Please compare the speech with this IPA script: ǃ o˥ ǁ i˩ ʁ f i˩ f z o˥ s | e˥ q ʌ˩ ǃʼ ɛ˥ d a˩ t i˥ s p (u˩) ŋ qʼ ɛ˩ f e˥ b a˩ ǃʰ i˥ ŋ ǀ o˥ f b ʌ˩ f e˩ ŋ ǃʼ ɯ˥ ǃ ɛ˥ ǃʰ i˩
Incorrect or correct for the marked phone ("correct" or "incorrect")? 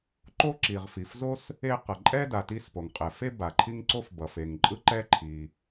incorrect